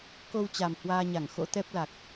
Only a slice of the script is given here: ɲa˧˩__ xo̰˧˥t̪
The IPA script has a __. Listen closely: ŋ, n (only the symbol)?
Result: ŋ